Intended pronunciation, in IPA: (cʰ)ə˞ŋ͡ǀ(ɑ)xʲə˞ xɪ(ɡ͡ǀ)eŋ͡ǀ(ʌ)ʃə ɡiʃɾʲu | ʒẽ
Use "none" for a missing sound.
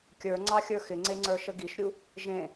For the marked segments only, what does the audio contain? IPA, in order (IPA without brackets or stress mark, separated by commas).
kʲ, ɑ, ŋ͡ǀ, ə˞